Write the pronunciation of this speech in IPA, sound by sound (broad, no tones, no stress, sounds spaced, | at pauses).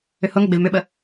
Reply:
ʏ h ʊ ŋ ə ɡ͡b e v m ʏ ɓ ə